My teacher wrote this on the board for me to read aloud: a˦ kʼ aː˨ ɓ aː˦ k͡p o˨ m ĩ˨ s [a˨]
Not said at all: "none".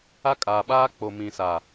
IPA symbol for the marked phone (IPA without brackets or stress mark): a˨